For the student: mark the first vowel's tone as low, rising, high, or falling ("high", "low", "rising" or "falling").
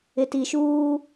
low